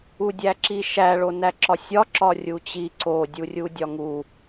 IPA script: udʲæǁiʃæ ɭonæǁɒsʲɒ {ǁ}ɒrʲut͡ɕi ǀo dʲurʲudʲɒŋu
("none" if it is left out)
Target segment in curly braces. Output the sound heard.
ǁ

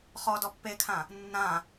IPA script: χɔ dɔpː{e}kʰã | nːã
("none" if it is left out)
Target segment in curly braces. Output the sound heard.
e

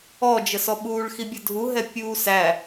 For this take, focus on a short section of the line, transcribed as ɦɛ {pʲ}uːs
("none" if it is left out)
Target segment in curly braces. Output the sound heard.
pʲ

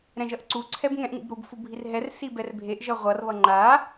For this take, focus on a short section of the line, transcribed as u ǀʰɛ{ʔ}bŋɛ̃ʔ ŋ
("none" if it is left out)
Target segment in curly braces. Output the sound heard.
none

